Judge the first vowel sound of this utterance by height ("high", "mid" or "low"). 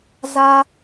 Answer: low